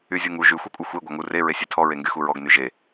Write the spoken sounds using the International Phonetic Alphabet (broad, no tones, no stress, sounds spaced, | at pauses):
y zʲ u ŋ u ʒ y xʷ ɛ kʷʼ ɨ xʷ e ɡʷ a ŋ u r e ɹ e sʲ e tʰ ɔ ɹ e ŋ ɡ y x u ɹ ɔ ɡ n y ʒ e